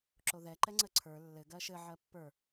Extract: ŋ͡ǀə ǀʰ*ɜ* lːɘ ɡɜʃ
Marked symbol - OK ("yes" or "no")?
no